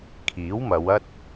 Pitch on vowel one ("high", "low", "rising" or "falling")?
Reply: rising